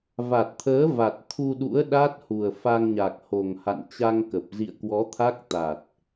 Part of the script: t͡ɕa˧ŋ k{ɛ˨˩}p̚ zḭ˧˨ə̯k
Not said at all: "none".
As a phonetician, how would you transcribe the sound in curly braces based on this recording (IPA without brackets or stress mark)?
ə˨˩